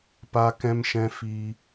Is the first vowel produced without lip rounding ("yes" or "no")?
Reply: yes